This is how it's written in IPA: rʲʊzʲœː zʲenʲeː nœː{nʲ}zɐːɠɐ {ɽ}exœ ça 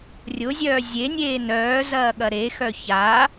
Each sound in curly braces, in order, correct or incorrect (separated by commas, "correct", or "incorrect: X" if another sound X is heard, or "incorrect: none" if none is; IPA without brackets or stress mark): incorrect: none, incorrect: ɾ